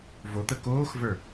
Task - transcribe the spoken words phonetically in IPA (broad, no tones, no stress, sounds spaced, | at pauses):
v o t̪ ə k oː x v ə˞